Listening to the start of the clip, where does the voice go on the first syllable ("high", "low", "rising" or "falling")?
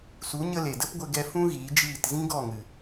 rising